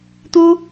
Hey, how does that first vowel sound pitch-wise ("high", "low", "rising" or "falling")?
high